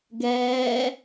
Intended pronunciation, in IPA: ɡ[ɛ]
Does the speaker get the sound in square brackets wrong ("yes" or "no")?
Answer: yes